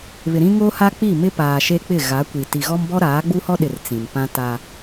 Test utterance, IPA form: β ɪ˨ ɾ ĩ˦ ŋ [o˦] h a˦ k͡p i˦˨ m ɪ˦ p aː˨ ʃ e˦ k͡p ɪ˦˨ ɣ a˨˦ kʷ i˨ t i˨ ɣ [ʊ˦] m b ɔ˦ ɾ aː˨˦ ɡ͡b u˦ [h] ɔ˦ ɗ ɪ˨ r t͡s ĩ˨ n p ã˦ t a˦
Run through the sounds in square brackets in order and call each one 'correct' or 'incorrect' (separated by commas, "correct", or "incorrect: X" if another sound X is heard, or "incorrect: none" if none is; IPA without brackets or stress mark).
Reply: correct, incorrect: ɔ˦, correct